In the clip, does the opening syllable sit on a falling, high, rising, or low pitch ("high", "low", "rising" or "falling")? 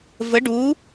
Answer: rising